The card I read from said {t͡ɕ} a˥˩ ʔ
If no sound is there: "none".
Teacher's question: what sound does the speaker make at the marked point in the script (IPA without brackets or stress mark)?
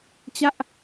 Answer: t͡ɕ